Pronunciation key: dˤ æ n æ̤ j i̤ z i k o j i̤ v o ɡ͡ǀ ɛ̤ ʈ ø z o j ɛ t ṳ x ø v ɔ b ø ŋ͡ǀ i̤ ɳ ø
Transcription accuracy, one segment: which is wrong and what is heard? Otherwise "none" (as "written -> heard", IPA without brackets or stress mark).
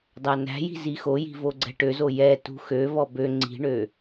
k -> x